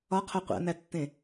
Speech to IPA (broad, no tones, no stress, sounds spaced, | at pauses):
ɒ qʰ o qʷ æ̰ n æ tː ẽ